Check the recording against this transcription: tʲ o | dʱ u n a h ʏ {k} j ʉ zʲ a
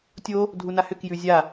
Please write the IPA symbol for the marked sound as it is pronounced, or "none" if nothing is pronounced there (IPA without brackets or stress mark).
k